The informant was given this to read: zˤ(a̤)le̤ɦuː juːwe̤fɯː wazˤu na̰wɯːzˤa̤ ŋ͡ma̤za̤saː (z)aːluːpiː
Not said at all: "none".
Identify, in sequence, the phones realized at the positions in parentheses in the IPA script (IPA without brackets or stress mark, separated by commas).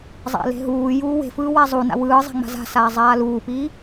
a̰, zˤ